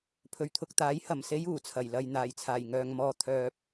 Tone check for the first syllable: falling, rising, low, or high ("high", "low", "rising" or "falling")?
low